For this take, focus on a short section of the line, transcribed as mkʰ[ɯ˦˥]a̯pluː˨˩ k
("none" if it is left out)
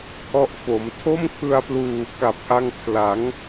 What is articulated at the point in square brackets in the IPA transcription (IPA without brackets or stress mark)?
ɯ˧